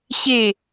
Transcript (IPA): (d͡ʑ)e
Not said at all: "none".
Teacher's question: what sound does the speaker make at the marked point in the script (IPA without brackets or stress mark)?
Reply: ɕ